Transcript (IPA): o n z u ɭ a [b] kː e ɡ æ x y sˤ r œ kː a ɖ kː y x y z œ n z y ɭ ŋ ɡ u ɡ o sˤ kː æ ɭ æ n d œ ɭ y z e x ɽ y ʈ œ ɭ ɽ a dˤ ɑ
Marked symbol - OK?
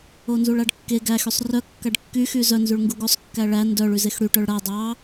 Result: no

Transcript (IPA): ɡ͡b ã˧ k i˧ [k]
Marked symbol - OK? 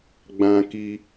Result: no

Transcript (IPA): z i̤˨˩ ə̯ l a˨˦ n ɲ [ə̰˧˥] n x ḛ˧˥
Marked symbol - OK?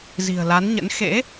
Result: yes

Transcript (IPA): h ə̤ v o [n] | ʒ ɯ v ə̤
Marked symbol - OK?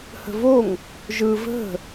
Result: no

